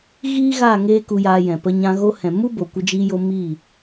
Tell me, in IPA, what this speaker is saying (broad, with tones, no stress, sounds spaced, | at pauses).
ɣ iː˦ ɣ aː˦˨ ŋ eː˦ k u˧ j aː˧ j ɛ̃˨ p ə˧ ɲ ã˧ ɣ o˧ h ɛ̃˨ m u˦ b o˨ kʷ ə˧ d͡ʒ iː˧ j o˧ m iː˦˨